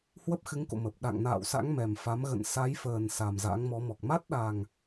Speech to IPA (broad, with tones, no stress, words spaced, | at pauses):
hwə˦˥p̚xɨ˨˦ŋko̰˧˨ mə˨˩p̚ ɗa̰˧˨ŋ na̰ː˧˨wsa̰˧˥ŋ mɛ˨˩mfa˨˦m ɣə̰˧˨nsa˨˦jfəː˨˩n sa˨˩mza̰˧˥ŋmɔ˨˦mɔ˨˩k̚ ma˦˥t̚ɗa˨˩ŋ